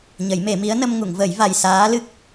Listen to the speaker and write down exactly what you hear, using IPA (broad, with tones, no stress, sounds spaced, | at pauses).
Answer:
ɲ ə˨˩˦ j m e˨˩˦ m i˧˥ ə̯ n ə˧ m ŋ u˨˩˨ ŋ v ə˨˩˦ j v a˨˩ j s aː˧˥ l ɨ˦˥ k̚